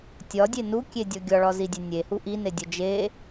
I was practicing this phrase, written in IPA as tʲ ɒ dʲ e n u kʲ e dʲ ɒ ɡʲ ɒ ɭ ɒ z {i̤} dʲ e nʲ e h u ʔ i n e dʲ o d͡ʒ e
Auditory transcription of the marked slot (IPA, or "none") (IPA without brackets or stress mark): i